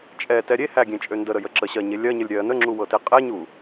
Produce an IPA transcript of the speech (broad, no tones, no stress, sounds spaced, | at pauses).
t͡ʃʼ ɛ t ɛ ɾʲ e h æ ɡʲ ẽ t͡ʃʼ ø n d ə ɾ ə j ə ǁ ə ɕ ɜ ɲ e lʲ ɜ ɲ ə lʲ ɾʲ ɜ n ə ŋ͡ǁ u w ɤ t e qʼ ɛ ɲ u